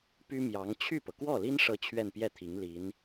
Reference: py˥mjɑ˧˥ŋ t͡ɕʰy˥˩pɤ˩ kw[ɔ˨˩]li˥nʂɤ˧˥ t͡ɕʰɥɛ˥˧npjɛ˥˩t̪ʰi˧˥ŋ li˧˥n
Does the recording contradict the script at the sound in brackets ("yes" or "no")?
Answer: yes